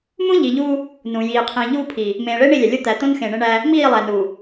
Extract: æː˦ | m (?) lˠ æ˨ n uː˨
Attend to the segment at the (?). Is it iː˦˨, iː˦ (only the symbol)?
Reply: iː˦˨